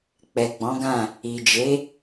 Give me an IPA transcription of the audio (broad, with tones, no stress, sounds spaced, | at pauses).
k͡p ɛ˨ ɡ͡b ɔ̃˨˦ ɡ ã˦˨ | i˨ d͡ʒ e˨˦